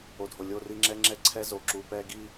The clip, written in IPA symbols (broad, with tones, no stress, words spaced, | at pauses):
o˨dʱo˨ lʲo˦ri˦ ŋ͡ǁɛ˦ŋ͡ǁɛ˦ ǀʰɛ˦ zo˨ ǁu˨pɛ˦ɡi˦